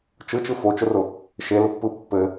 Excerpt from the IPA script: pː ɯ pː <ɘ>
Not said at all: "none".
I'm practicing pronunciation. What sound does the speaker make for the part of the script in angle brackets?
ɘ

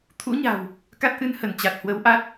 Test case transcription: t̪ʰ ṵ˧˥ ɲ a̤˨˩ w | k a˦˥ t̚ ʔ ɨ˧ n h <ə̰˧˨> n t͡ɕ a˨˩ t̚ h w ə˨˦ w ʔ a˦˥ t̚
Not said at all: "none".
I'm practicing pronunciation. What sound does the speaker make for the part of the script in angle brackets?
ə˧˩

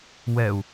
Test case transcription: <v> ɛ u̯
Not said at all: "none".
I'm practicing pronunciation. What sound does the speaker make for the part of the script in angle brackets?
w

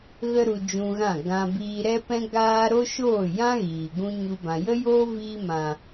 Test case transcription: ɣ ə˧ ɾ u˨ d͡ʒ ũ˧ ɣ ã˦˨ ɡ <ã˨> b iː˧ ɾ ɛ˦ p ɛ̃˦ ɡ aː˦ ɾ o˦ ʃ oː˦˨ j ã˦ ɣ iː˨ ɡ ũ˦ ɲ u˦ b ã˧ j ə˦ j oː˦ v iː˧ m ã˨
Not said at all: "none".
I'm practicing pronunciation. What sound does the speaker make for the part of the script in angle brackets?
ã˧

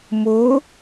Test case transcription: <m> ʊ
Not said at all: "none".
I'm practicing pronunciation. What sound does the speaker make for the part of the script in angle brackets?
m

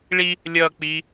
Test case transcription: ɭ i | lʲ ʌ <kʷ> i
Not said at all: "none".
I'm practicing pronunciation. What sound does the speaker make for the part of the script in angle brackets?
k͡p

